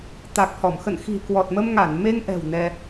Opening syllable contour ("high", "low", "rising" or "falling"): low